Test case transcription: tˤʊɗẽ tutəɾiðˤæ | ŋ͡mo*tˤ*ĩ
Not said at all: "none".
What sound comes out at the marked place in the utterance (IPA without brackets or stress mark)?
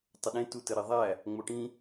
ʈ